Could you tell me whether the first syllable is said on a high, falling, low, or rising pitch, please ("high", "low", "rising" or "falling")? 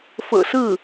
low